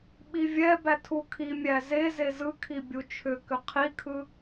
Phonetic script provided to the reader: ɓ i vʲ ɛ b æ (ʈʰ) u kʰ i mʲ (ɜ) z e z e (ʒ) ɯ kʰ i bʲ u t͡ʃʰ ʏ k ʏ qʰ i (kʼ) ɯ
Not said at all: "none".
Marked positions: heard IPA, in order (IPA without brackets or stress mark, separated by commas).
tʰ, æ, z, kʰ